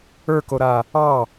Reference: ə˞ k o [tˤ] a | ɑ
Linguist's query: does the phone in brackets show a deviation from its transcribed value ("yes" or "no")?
yes